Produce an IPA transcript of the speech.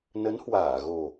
nə˨˦nhwaː˧˩ɣo˨˩

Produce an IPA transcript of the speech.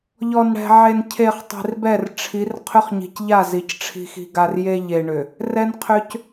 ʎɔ˨nɽɛ̤˨ʕe˨ncʰe˨χ tˤi̤˨rbɛ˦˨rʈ͡ʂʰi˨˦r qʰʏ˦χɲi̤˨cʎa˦˨ zi˨cʈ͡ʂʰi̤˦xi̤˦ɡa˦r je˦ʎe˨ɳʏ˨ | rɛ˦nqʰʏ˦c

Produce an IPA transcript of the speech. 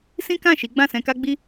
sĩ˦kã˦˨ʃi˨˦ ɡ͡bã˦˨sɛ̃˧ka˦ɡ͡bi˦

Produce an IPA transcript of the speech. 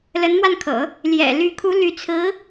lə˧˥nmwa˧nkʰɤ̰˨˩˦ | ljɛ̰˨˩ly˧˥kʰu˧˥ ly˧˥t͡sʰɹ̩˧˥

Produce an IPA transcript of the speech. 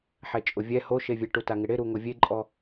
ħɛt͡ʃʼʊvʲɛ hoʃevʲe ʈutaŋɪɽɪ ɾuŋʊvʲeǃʼɔ

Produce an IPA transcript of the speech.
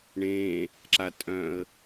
ɳẽ | ǁatʼœ̃ə̯

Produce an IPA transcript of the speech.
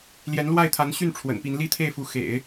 ljɛ˧˥nlwa˥˩ɪ̯t̪ʰa˧˥nɕy˥˩n ʈ͡ʂʰwə̰˨˩npi˧˥n li˥˧t̪ʰe˥˩ɪ̯fu˧˥ xḛ˨˩˦ɪ̯

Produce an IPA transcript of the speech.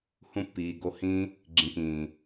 hũ˧pːiː˨ ɡo˧hĩː˦ | ɡ͡ǁĩ˨kĩː˨

